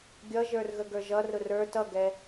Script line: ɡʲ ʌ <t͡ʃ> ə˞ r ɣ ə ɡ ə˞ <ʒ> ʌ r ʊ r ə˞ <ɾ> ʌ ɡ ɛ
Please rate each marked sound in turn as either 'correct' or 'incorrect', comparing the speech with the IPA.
incorrect, correct, incorrect

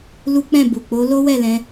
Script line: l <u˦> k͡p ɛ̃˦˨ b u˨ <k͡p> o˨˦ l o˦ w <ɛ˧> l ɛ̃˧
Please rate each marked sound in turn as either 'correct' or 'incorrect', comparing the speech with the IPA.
correct, correct, incorrect

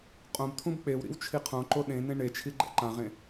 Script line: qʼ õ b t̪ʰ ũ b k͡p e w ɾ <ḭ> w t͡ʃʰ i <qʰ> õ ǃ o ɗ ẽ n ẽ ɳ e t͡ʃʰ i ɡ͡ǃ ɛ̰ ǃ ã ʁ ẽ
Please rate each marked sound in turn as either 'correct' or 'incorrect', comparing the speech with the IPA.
correct, correct

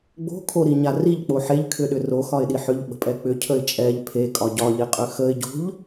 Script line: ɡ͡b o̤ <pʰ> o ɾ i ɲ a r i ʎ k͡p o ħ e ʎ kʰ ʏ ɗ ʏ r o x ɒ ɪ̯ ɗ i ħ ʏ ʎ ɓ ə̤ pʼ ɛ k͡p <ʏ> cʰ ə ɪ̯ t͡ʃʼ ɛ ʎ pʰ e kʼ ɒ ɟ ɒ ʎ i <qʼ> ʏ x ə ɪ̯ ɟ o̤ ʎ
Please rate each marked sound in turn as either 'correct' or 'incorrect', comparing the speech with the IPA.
incorrect, correct, correct

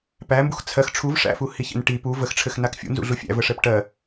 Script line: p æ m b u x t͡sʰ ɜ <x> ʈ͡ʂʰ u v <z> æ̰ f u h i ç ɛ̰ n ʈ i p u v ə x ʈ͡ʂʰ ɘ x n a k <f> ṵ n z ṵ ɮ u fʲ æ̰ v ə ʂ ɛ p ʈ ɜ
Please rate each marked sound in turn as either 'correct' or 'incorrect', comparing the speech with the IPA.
correct, incorrect, incorrect

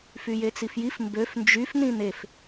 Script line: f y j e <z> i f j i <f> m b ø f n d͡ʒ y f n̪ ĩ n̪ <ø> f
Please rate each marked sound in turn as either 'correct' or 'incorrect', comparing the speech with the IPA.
incorrect, correct, incorrect

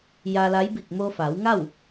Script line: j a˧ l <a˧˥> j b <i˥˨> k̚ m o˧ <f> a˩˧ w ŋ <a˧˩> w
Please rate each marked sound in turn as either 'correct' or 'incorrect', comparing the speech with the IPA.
correct, incorrect, correct, incorrect

